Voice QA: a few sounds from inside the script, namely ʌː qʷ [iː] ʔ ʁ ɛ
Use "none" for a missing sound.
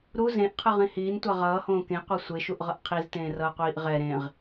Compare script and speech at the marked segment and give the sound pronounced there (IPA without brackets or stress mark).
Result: iː